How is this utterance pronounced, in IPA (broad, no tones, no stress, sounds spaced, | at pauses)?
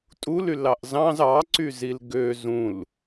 tʼ u l y l ɑ ʔ z ɑ̃ z ɑ ǀ y z i l ɡ ø z ũ l